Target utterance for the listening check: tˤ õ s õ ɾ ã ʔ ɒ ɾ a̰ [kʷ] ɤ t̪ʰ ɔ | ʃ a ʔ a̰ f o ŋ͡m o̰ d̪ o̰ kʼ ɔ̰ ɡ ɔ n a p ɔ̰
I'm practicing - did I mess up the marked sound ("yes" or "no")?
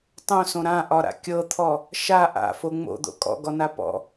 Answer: yes